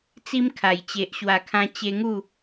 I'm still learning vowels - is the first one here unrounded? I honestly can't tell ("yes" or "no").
yes